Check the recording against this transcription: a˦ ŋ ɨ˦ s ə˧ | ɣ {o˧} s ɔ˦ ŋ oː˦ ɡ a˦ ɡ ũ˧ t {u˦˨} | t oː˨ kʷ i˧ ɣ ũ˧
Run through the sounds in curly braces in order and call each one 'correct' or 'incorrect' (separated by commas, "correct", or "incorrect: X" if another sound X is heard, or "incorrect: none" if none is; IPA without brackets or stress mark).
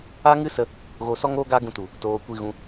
correct, incorrect: u˨